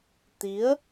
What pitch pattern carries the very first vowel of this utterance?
rising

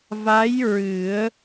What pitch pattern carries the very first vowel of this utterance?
rising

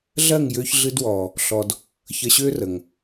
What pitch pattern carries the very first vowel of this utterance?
falling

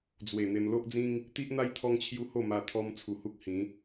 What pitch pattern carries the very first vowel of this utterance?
low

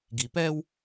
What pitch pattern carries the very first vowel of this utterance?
low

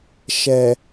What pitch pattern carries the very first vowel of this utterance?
low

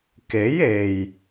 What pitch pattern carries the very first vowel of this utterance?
rising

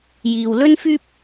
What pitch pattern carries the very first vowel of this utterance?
low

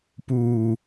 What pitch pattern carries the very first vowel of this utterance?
low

